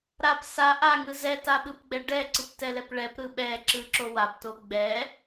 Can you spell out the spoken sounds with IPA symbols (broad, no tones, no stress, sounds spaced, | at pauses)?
ɾ a p s a ʔ a ŋ ɯ z ɛ t a ɓ ɯ p ɡ͡b ɛ ɖ ɛ ǀ ɯ p t ɛ l ɛ p ɭ ɛ p ɾ ɯ ɓ ɛ ǁ ɯ ǁ o w a p t o ɡ͡b ɛ